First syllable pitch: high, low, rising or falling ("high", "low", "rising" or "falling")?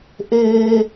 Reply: high